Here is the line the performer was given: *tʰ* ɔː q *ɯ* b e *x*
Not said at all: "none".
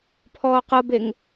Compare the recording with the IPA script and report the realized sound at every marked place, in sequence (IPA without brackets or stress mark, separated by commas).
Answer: pʰ, ɤ, ŋ